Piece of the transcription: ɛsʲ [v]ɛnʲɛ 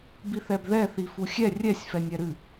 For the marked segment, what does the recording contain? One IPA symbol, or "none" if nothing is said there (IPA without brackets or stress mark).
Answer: f